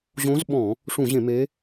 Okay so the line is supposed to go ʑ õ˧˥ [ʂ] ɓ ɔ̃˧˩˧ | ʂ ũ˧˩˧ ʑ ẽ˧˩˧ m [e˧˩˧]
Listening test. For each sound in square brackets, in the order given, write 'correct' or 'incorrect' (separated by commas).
incorrect, incorrect